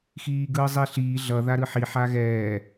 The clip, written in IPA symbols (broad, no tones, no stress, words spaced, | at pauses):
xiːɡɯːzˤiɬiː ɮʌ ðaɾɯħi ħaɣɛː